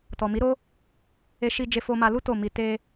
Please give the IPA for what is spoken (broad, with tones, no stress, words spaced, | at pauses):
tɔ˨mi˨˦ɾo˦ | e˧ʃi˧d͡ʒe˧fo˧ ma˧lu˦ to˦˨mi˧ te˧